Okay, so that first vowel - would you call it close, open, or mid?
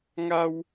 open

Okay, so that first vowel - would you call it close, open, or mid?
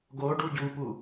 mid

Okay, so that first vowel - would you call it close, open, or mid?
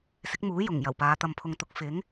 close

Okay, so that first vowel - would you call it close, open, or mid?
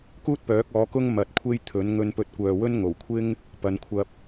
close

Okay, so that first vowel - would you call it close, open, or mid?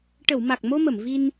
mid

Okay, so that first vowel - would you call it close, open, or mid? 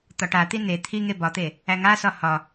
open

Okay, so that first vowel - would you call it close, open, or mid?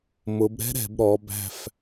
close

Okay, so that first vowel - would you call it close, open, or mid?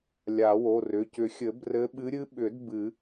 open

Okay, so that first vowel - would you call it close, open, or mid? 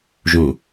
close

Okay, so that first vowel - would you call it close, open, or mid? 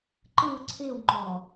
close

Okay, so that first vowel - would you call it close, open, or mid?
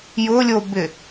close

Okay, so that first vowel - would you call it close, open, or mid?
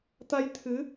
open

